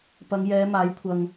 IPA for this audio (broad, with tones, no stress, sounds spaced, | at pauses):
p ɐ˨˧ ŋ j ɛː˨˧ m aː˨˥ j kʷʰ ɐ˨ ŋ